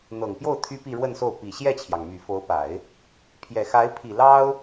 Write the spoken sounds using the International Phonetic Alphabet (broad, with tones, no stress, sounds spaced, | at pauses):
n̪ ɤ˨˩ ŋ p j o˥˩ ʊ̯ t̪ʰ y˥ p i˥˧ ɻ w ə˥˧ n s o˥˩ ʊ̯ p i˨˩ ɕ j ɛ˥˩ t͡ɕʰ j ɑ˩ ŋ m y˨˩ f o˧˥ ʊ̯ p a˨˩˦ ɪ̯ | pʰ j ɛ˨˩ x a˧˥ ɪ̯ pʰ i˨˩ l ɑ˥ ʊ̯